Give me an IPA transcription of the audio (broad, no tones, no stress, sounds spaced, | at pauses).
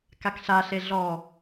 k a k ɬ a ɬ e ɮ ɔ